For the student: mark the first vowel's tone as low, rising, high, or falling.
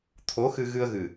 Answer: rising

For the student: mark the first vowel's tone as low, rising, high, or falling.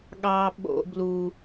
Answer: high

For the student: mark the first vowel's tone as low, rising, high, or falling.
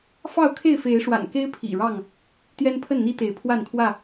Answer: falling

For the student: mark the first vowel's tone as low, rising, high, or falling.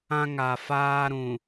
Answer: high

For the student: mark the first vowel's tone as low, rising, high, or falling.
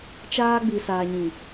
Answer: high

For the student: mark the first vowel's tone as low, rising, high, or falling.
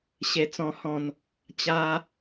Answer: high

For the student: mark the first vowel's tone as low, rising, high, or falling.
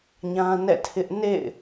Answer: high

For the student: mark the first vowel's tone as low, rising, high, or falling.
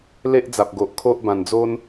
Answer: high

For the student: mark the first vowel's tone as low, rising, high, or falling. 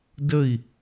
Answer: falling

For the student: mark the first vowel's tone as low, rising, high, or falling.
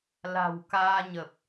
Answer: low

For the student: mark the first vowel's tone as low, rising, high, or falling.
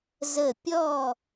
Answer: falling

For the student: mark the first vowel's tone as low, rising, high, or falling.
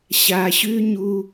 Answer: low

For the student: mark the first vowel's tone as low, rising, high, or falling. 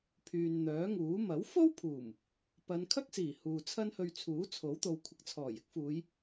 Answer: low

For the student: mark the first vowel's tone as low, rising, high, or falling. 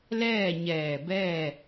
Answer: falling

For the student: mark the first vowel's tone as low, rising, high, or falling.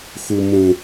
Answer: low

